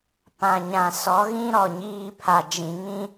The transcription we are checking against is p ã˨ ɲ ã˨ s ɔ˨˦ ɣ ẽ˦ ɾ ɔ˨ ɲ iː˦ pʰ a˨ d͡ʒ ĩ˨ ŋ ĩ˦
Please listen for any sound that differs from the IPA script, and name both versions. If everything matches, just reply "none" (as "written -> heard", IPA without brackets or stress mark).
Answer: ẽ˦ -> ĩ˦